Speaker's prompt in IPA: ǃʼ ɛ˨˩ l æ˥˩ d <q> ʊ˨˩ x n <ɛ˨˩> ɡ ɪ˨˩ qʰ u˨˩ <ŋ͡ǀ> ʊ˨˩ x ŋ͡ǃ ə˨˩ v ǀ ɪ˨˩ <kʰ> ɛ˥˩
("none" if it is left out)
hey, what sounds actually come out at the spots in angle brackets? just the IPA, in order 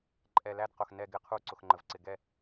q, ɛ˨˩, ǀ, ɡ

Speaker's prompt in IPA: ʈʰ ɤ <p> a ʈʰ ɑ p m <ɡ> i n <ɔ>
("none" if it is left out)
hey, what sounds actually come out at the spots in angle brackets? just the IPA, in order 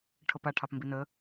p, b, ə

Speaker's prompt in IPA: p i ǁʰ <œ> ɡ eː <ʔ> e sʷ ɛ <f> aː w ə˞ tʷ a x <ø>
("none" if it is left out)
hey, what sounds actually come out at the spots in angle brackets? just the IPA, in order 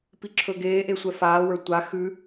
ɵ, ʔ, f, ʉ

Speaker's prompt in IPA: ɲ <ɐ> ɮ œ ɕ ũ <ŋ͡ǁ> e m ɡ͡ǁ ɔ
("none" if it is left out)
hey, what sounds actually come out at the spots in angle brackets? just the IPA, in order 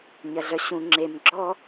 ɐ, ŋ͡ǁ

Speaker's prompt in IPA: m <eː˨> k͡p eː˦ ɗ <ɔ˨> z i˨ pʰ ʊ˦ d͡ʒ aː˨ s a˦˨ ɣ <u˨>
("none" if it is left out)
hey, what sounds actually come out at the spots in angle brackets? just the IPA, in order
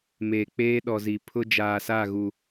eː˨, ɔ˨, u˨

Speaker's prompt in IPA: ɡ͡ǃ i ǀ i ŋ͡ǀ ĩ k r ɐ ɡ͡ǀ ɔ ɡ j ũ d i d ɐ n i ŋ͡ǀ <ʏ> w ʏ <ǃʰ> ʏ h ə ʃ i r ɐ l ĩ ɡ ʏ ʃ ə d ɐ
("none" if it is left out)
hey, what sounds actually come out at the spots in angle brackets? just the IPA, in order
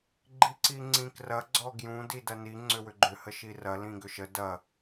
ʏ, ɡ͡ǃ

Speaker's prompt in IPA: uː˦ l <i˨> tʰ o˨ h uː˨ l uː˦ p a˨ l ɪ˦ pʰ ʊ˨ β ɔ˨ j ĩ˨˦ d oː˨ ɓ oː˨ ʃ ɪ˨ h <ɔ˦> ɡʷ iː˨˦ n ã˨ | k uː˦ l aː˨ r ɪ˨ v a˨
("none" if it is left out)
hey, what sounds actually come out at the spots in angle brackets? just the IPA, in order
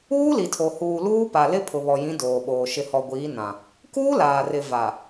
i˨, ɔ˨

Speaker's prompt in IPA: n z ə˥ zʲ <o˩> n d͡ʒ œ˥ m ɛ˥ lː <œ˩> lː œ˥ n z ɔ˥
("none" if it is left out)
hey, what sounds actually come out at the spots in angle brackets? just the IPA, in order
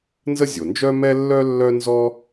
o˩, œ˥

